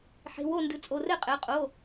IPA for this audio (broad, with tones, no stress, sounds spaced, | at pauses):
ħ e̤˩˧˩ w o˥˩ n d ɨ˩˧˩ t͡sʼ o˩˧˩ r ɘ˥˩ qʼ ɘ˩˧˩ qʼ o˩˧˩